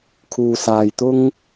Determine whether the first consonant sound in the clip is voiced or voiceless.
voiceless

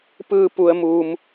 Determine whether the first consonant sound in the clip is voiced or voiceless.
voiceless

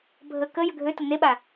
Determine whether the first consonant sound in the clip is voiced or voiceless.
voiced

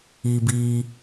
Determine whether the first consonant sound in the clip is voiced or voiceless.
voiced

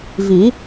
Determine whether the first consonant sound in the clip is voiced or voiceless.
voiced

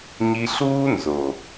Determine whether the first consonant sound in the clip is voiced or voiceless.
voiced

